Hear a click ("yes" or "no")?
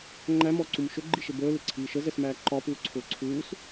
yes